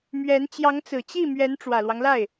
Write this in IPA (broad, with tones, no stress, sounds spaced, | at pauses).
m ɥ ɛ˧˥ n t͡ɕ j ɑ˧˥ ŋ t͡s ɹ̩˨˩ t͡ɕ i˥˩ m ɥ ɛ˧˥ n ʈ͡ʂ w ä˨˩ l w ɑ˦ ŋ l a˥˩ ɪ̯